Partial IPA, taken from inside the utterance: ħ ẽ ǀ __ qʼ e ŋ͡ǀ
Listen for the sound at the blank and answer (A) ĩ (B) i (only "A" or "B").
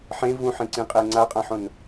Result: A